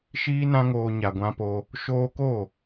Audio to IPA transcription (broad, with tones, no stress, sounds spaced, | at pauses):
ʃ iː˦ n ã˦ ŋ oː˧ ɲ a˨ ɡʷ ã˧ p o˧ | ʃ oː˧ k o˦˨